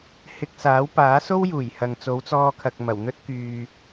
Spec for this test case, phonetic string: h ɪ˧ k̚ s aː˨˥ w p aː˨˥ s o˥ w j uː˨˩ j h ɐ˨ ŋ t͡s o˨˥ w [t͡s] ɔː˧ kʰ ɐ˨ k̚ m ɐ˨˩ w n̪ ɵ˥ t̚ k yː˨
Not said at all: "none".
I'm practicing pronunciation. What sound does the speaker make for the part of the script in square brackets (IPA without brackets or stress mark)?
t͡s